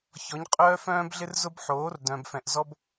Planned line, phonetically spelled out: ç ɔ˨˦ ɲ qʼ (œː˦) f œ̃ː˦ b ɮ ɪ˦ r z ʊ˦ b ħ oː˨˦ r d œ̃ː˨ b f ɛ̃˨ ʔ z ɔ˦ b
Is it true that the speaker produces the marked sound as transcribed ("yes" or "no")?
yes